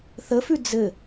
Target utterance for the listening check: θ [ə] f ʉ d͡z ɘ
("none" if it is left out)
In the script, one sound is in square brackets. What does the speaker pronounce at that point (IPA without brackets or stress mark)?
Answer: ə